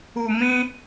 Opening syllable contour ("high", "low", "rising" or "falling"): low